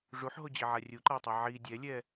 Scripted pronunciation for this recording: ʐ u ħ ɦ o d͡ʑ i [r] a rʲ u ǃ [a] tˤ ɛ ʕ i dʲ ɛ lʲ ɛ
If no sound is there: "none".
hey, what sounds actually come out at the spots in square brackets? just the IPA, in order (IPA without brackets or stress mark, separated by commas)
ʕ, a